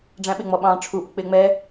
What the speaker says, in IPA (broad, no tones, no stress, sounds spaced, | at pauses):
ɖ͡ʐ æ̃ ɓ ɪ ŋ͡m ɔ ɓ ɑ̃ː ʈ͡ʂʰ u ʔ ʊ k͡p ɪː ŋ͡m ɛ